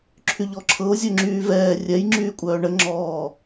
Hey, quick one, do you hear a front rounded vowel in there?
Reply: yes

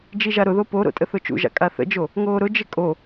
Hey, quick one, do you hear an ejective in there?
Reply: yes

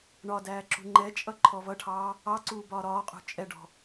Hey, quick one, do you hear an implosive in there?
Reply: no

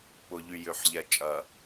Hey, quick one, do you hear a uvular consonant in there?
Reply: no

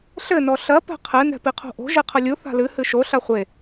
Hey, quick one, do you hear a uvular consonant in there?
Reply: yes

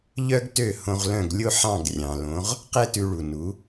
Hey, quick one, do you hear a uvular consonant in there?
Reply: yes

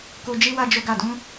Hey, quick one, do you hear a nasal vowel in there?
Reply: yes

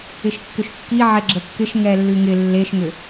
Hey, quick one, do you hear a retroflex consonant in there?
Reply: no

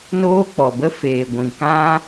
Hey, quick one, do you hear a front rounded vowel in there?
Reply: no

